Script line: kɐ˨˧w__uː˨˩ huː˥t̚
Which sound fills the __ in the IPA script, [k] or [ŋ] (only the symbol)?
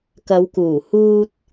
k